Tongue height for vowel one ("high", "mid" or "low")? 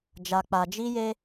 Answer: low